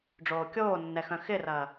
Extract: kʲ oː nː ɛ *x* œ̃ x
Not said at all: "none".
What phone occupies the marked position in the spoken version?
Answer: x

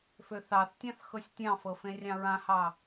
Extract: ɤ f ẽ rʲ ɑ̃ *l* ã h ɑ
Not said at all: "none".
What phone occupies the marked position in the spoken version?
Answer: ɹ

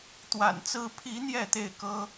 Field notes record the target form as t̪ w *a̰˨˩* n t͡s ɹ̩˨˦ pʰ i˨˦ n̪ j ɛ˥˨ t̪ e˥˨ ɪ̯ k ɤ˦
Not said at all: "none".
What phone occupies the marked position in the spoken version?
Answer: a̰˨˩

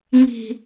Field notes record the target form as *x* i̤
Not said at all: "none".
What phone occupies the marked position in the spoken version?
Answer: ŋ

